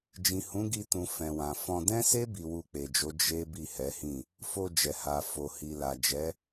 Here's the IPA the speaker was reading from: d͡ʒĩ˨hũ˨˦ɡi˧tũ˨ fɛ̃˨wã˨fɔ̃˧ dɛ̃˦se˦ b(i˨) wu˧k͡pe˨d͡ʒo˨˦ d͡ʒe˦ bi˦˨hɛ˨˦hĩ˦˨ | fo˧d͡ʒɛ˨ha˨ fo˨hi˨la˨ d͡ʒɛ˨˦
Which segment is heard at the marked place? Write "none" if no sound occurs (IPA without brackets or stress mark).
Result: i˧